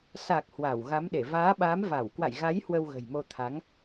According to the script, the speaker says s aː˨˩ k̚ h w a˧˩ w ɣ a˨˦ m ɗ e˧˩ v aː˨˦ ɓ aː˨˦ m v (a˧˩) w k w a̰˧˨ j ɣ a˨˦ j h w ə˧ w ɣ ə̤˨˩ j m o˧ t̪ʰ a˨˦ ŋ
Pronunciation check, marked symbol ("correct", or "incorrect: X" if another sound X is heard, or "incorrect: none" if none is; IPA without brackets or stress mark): correct